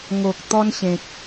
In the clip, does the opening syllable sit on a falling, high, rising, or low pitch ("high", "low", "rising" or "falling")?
low